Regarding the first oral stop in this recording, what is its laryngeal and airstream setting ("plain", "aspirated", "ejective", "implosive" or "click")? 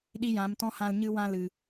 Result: implosive